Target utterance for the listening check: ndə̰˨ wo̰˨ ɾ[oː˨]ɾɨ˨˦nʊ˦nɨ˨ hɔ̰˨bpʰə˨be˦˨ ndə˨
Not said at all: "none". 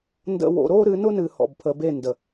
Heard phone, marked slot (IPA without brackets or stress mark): oː˦